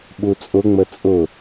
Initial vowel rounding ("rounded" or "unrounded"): rounded